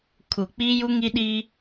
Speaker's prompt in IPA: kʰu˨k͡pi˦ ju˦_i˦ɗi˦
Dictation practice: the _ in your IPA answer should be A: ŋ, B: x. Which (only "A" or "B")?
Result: A